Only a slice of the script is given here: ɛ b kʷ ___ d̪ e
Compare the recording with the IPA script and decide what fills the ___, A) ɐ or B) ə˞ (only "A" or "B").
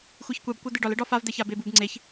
A